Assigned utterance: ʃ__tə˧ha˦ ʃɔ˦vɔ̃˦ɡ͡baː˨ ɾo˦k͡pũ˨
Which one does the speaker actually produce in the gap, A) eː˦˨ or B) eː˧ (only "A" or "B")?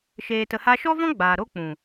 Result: B